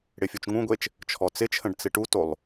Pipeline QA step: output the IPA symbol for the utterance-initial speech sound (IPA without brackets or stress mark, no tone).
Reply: ɽ